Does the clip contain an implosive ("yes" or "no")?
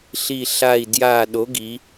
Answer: yes